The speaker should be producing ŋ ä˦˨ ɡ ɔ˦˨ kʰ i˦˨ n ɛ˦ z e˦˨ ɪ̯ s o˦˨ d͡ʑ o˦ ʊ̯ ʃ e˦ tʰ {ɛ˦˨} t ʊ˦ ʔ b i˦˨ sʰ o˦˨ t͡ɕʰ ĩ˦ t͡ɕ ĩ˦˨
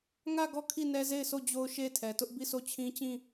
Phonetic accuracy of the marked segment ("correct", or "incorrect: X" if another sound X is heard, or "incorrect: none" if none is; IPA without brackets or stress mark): incorrect: ɛ˨